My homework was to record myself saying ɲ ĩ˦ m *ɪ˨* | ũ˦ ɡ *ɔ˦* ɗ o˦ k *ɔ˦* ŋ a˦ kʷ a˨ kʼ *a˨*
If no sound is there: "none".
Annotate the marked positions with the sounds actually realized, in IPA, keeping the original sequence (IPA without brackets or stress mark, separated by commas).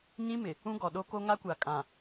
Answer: ɪ˨, ɔ˨, o˦, ã˨